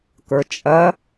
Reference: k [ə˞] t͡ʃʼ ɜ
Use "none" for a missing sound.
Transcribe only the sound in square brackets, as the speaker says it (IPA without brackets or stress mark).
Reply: ə˞